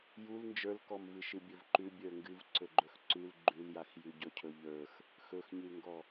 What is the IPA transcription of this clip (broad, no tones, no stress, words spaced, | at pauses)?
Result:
jul nd͡ʒə˞lkɔmvɨʃɨ bʲɵvǃʉ bʲə˞ŋɡɨv ǀɵɡ͡ǃɵxǀʉl ɡ͡ǃʉljaxjʉ ɟɵcʰɵʎə˞x | xɵxɲʉŋɡɔ